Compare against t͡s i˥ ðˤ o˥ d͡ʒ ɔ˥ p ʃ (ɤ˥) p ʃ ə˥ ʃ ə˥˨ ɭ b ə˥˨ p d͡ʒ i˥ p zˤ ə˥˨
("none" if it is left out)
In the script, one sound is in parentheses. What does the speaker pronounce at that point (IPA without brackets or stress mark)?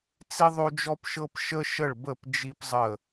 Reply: ɤ˥